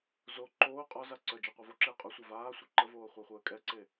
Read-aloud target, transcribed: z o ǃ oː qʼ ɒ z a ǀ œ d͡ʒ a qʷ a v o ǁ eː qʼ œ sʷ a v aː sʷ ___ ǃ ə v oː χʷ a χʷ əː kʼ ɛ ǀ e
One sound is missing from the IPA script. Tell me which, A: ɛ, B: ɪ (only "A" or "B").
A